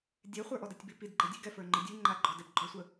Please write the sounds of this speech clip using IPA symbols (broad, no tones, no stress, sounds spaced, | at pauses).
dʲ ɛ χʷ ə˞ ʔ ɔ d ɛ tʲ b i p i d ɡ͡ǃ ɛ dʲ ʉ ɡ ɛ f ə˞ ŋ͡ǃ ɘ dʲ ʉ ŋ͡ǃ a ɡ͡ǃ ɔ d ɛ b ɡ͡ǃ ɔ sʷ ə